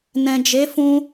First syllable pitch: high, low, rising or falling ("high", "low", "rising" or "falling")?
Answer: low